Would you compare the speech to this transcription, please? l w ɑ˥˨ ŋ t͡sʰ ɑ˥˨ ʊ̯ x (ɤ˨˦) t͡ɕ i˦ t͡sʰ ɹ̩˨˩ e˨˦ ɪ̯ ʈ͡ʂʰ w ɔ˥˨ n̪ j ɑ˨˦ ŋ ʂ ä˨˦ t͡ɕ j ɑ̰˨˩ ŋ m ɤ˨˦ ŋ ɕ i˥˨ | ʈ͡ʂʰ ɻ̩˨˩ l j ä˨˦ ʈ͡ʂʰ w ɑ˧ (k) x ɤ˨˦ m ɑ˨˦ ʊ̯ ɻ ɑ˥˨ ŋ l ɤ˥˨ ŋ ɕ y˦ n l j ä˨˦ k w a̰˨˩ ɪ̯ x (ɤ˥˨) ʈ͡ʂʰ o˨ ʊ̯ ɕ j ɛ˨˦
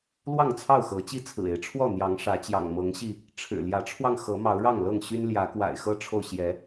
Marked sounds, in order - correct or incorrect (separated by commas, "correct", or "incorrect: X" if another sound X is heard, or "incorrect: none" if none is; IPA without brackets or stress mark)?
correct, incorrect: ŋ, incorrect: ɤ˦